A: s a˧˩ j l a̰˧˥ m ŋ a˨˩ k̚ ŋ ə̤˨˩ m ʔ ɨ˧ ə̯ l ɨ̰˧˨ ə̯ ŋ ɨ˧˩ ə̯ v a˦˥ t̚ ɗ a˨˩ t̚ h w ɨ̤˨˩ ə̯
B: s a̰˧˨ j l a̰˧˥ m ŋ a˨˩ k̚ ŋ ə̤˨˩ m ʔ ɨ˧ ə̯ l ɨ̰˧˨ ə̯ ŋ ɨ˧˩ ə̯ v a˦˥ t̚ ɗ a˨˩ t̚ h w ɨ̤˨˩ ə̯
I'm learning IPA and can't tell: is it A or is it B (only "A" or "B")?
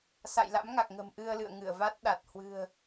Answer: B